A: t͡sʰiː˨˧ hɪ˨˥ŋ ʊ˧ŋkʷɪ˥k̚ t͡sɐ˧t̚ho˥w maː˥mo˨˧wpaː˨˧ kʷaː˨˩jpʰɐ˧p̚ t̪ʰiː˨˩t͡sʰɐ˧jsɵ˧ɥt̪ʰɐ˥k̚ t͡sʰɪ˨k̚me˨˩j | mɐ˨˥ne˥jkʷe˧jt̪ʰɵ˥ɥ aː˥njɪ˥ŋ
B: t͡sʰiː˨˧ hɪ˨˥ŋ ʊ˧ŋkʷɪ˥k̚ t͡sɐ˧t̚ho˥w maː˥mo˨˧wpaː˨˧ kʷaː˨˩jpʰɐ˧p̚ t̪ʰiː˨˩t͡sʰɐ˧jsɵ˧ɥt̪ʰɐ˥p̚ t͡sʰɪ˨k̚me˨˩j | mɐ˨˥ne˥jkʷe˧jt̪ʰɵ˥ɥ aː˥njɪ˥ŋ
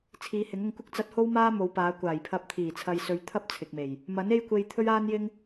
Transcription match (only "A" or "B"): B